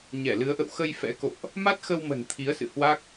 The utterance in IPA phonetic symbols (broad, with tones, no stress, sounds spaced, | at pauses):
ɲ ɛ˧˩ l ɨ˨˦ ə̯ ʔ ə̰˧˨ w x ə˧ j f ɛ̰˧˥ k o̰˧˨ ʔ | m a˦˥ t̚ x ə˧ w m ə̤˨˩ n t̪ʰ i˨˦ ə̯ s ɨ̰˧˨ h w a˦˥ k̚